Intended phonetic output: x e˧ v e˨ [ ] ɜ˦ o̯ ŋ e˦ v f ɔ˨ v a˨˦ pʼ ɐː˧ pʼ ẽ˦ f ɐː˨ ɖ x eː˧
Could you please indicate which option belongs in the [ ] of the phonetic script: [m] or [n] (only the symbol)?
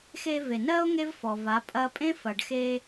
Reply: n